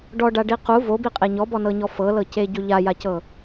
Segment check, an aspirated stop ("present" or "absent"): absent